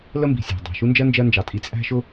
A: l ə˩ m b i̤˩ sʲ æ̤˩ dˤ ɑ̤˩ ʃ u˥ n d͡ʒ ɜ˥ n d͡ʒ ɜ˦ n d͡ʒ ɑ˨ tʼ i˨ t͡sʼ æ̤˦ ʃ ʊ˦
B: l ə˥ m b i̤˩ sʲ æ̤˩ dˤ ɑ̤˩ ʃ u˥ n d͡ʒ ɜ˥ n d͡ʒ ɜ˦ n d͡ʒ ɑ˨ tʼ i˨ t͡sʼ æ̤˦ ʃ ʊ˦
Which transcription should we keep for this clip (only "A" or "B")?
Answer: B